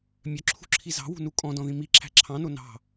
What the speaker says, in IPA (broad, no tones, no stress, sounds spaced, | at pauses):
mʲ œ ǁʰ ṳ ǁʰ i z ɑ̤ w ṳ n u kʼ ɔ̃ d ɔ̃ ð ĩ m i ǁʰ æ̤ ǁʰ ɑ̃ n o n ɑ̤